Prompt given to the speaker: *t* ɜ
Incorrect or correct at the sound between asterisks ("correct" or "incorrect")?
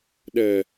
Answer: incorrect